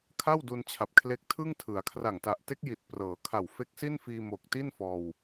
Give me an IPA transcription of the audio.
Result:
kʰ a˥˩ w d u˧ n t͡ɕʰ a˨˩ p̚ kʰ l e˦˥ k̚ tʰ ɯ˥˩ ŋ tʰ ɯ˩˦ a̯ kʰ r a˨˩ ŋ t a˨˩ ʔ t e˦˥ k̚ j i˨˩ t̚ p r ɤː˩˦ kʰ a˨˩ w f e˦˥ k̚ s i˥˩ n f iː˧ m o˨˩ k̚ t i˥˩ n f ɔː˧ w

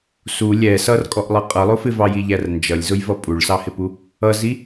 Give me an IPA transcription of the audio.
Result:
s u lʲ ɛ s ʌ r kʼ ɔ ʔ lˠ ʌ qʼ ʌ lˠ ʊ f ɪ v ɑ j i ʎ æ r n d͡ʒ ʌ lʲ z ʊ j v ʌ pʼ u ɭ s ɑ h ɪ p u | ʌ z i

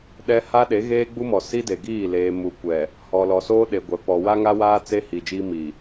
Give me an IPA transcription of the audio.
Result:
ɗ ɛ˦ h a˦ ɗ e˨˦ ɣ eː˦ ɡ͡b u˦ m ɔ˨ s i˦ d e˨ ɡ iː˦˨ l eː˨ m u˨ kʷ ɛ˨ | h ɔ˨ l ɔ˨ s oː˦ ɗ e˨ ɡʷ ɛ˨ p ɔ˨ w a˦ ŋ a˦ w aː˦ t͡s e˦ h i˨ d͡ʒ iː˦ m i˨

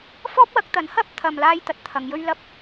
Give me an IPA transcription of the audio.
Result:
f ɔː˥ p̚ w ɐ˨˥ k̚ t̪ ɐ˨˥ n h ɐ˥ p̚ t̪ʰ ɐ˧ m l aː˥ j t̪ ɐ˨ t̚ t̪ʰ ɐ˨˧ ŋ j ɵ˥ ɥ l ɐ˧ p̚

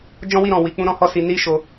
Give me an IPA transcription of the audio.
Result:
d͡ʒ ɔ̃˦ w i˦˨ ɾ ɔ̃˨ w i˧ k͡p ũ˦ ɾ ɔ̃˦ h ɔ˦˨ s i˧ n i˦ ʃ o˧

